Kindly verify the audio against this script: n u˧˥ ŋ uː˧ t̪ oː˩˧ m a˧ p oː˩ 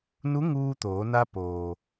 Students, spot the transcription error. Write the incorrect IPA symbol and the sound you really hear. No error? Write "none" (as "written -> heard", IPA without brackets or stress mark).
m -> n